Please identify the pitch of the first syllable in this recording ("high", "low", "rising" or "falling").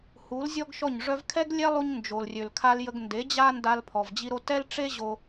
rising